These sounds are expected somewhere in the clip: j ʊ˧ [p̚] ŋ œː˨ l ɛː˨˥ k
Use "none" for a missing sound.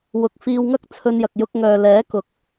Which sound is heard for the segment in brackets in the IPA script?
k̚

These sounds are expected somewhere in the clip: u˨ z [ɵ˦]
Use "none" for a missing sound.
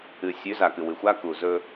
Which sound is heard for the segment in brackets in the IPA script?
ɵ˦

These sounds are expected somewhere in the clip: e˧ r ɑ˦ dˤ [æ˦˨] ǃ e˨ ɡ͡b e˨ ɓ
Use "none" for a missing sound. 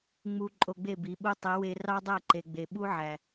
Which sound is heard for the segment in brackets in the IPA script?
æ˦˨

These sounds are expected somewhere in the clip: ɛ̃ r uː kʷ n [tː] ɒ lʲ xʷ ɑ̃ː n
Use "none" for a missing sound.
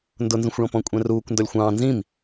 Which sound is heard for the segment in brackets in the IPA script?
d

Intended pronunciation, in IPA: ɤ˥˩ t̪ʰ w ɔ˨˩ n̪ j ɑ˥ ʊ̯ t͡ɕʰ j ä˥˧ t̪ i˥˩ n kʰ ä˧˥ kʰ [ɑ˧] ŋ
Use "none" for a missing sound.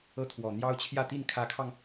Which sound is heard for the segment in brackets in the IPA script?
ɑ˧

